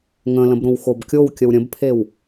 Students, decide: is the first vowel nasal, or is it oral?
nasal